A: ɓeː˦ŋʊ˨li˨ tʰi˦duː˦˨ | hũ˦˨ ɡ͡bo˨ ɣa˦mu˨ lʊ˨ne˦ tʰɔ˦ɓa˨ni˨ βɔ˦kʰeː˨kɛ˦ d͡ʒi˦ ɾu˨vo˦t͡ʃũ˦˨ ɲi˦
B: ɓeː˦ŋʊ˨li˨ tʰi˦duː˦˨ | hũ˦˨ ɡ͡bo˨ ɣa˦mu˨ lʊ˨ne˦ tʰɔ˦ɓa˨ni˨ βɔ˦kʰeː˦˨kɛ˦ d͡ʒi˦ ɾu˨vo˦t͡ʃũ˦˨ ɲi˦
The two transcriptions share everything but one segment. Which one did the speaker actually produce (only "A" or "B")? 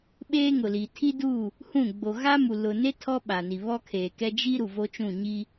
A